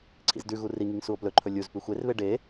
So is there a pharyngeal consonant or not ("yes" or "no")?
no